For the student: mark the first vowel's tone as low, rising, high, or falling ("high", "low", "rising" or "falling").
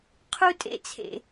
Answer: high